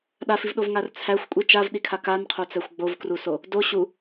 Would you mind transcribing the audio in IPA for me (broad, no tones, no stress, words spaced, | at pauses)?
ɗafivɗovŋar t͡sʰæxʷkʷʼi t͡ʃavɗikʰa kanqʰot͡sæxʷ ɡ͡bovkruso | do ɕu